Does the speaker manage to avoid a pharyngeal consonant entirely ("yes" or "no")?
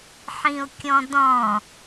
no